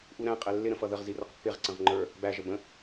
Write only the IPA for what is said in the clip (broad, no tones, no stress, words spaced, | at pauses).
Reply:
ʔuɾæ̃qʼɛ lːɪɾə̃ fʌðəʁzi rəqpːɪʁǀə̃ʁ ŋ͡ǃə˞ | bæʒə bə̃